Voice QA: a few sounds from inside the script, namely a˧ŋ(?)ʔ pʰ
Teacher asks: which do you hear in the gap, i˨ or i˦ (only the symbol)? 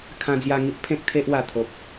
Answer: i˦